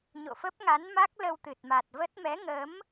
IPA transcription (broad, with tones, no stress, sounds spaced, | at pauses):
ɲ o̰˧˨ f ə˦˥ p̚ ŋ a˨˦ n m a˦˥ k̚ l ə˧ w t̪ ɨ˨˩ t̚ m a˨˩ t̚ v ə˦˥ t̚ m ɛ˨˦ ŋ ə˨˦ m